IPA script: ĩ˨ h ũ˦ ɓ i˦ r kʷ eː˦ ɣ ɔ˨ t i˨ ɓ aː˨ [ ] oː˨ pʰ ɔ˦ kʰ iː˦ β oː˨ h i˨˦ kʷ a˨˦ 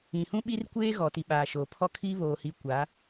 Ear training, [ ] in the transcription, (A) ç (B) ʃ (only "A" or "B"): B